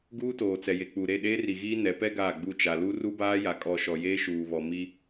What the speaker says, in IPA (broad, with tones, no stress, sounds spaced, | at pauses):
ɡ uː˦ t oː˨ t͡s ɛ˨ j e˨ k͡p u˨ ɾ e˦˨ ɗ eː˦ r i˨ ɣ iː˦ n ɛ˨˦ p ɛ˦ ɡ aː˦˨ ɡ͡b u˦˨ t͡ʃ a˨ l u˦ r u˦ b aː˦ j a˨ kʼ ɔ˨ ʃ ɔ˨ j eː˦ ʃ uː˨ β ɔ˨ m i˦